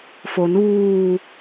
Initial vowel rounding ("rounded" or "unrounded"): rounded